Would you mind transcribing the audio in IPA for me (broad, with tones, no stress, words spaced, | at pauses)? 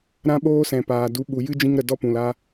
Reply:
ɾã˧ɓoː˧ sɛ̃˨paː˨du˨˦ ɓu˨jɨ˦d͡ʒĩ˧ŋ ɾə˨ dɔ˦pũ˨la˦